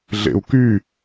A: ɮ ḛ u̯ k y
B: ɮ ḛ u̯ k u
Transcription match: A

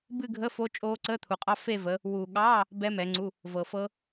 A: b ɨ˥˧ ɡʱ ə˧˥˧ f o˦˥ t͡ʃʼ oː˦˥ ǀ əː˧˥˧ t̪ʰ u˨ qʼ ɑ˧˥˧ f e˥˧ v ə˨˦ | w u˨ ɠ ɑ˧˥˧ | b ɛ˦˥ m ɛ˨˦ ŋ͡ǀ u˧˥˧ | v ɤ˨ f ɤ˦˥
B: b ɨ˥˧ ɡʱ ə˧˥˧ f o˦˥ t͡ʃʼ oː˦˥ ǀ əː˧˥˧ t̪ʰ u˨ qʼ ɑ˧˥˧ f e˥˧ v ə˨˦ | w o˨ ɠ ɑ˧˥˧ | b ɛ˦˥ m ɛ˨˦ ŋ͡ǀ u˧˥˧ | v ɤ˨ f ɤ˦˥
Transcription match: A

